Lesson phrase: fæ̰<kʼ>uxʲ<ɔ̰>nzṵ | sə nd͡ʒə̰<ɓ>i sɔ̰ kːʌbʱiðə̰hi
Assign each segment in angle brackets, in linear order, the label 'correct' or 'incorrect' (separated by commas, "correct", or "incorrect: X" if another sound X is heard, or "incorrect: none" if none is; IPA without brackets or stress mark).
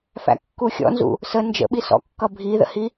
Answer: incorrect: kː, correct, correct